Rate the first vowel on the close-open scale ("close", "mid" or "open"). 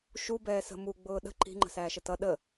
close